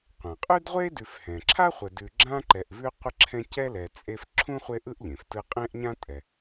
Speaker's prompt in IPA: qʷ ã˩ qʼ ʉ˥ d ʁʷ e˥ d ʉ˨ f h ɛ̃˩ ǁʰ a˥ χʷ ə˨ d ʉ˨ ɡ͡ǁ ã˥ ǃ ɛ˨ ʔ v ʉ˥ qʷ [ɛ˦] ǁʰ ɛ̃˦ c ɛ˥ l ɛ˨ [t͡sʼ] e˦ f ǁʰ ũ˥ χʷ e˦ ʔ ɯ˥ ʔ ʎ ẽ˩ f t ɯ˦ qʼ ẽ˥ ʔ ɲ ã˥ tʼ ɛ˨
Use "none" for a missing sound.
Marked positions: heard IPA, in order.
ə˦, t͡sʼ

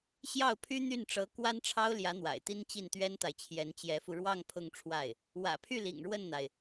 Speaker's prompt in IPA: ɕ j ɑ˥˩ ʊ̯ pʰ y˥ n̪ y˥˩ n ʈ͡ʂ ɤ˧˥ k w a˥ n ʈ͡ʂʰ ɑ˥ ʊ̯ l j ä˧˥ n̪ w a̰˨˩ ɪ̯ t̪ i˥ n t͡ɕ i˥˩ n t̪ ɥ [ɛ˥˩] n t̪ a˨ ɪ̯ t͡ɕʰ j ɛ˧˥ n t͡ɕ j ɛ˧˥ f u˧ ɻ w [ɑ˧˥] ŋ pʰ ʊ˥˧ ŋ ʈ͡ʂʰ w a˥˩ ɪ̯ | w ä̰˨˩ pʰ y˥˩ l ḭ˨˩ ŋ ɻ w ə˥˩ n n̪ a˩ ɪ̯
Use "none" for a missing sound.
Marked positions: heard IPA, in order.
ɛ˥, ɑ˥˧

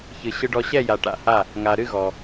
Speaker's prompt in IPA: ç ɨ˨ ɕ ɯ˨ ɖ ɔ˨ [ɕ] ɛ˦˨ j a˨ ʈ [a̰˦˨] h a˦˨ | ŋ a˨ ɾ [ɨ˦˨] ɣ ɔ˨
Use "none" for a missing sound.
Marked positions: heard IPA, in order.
ɕ, a̰˦˨, ɨ˦˨

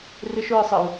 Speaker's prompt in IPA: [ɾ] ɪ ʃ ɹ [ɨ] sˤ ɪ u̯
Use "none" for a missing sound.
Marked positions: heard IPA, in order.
r, ɨ

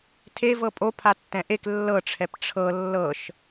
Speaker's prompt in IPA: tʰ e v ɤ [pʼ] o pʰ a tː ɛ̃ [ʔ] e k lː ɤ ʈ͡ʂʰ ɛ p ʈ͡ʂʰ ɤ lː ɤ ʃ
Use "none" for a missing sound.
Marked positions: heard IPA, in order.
pʼ, ʔ

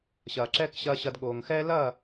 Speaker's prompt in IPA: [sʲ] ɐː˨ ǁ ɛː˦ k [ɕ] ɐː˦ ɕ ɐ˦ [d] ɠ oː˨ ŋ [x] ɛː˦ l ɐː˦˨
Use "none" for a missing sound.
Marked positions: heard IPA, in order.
ɕ, ɕ, d, x

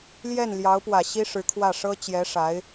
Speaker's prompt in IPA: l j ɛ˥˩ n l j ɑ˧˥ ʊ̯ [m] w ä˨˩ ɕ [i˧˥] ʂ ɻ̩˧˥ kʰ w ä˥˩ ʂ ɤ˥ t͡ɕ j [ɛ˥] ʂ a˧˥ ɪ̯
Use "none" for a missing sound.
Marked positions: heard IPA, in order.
p, i˥, ɛ˧˥

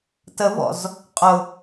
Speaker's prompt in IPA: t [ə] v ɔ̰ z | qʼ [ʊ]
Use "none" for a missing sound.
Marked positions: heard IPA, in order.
ə, ʊ

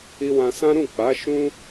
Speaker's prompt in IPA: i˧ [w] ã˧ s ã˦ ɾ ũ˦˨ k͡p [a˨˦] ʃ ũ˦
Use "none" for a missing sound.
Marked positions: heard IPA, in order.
w, a˨˦

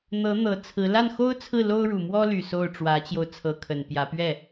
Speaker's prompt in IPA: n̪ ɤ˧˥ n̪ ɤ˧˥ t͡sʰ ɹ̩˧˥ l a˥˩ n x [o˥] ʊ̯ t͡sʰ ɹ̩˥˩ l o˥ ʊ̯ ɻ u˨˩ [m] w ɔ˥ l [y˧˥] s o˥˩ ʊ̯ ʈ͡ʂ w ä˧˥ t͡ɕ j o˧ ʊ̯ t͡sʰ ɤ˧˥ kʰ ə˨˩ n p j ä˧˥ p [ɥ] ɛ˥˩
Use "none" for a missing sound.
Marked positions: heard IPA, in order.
o˥, m, y˨˩, ɥ

